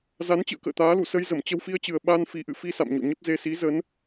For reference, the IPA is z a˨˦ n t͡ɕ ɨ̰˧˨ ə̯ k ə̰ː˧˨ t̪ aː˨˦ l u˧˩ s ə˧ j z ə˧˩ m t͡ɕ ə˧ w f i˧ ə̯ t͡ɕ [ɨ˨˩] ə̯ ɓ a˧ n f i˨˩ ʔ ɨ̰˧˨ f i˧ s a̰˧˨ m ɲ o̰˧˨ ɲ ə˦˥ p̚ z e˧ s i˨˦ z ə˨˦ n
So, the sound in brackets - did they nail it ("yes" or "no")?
yes